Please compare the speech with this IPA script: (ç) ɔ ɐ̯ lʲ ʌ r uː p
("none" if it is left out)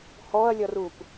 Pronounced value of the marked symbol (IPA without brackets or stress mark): h